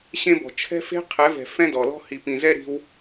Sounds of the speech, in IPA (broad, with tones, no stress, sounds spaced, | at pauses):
ɕ ẽ˦ b ɔ̤˨ t͡ʃʰ ɛ̤˦ f e̤˦ qʰ ɛ˨˦ v ɛ̤˨ f ɛ̃˦ d ɔ˨ l ɔ̤˦ h i˨ p ĩ˨ z ɛ˦ ɾ i̤˧ w